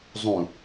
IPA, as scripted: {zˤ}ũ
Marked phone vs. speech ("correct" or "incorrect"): correct